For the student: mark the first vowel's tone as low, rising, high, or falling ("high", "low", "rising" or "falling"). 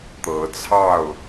rising